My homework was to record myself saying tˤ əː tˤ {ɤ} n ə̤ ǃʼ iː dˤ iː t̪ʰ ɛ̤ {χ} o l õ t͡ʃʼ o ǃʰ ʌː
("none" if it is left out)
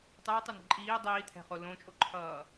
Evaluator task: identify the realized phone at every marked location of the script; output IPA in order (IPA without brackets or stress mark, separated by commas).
ə˞, χ